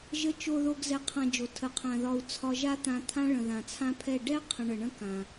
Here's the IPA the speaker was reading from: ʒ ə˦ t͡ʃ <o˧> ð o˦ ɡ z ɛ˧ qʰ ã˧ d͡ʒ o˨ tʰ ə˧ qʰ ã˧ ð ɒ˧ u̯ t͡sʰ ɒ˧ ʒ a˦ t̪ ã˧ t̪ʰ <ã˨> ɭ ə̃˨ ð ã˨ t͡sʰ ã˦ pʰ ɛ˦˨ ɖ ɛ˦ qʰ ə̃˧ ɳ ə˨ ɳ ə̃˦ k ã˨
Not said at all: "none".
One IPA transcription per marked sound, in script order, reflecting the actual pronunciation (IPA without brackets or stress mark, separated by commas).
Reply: o˦, ã˦